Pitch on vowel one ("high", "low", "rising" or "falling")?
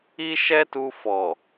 high